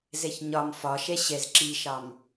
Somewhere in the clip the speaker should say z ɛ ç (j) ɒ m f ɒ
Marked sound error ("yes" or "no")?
yes